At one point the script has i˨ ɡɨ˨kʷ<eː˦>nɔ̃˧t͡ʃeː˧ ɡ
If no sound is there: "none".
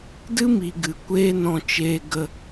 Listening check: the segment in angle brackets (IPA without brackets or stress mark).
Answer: eː˦